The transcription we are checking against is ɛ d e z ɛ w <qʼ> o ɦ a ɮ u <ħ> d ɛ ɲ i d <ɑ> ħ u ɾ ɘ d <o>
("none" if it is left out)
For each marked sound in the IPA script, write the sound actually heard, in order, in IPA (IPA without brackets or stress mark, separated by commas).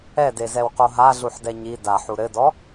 q, ħ, a, ɔ